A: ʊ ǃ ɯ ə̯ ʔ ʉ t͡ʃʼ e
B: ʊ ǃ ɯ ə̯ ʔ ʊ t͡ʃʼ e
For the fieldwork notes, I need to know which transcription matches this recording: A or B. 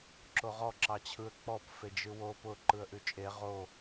A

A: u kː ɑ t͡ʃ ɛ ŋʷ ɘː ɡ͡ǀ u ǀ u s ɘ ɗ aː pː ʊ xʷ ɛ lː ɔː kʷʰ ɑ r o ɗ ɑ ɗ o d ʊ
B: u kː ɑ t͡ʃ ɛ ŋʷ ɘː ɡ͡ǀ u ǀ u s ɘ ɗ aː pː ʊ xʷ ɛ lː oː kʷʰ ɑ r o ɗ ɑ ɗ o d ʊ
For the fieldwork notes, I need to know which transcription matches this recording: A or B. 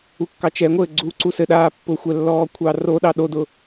A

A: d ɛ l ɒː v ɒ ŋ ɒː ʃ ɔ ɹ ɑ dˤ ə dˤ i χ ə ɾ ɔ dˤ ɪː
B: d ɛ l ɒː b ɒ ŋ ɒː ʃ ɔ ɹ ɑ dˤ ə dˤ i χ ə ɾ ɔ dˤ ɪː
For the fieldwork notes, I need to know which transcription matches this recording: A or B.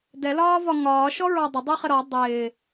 A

